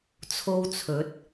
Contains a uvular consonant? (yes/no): no